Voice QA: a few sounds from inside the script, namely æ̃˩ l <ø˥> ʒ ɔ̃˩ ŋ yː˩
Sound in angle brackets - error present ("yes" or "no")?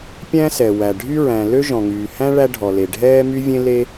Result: no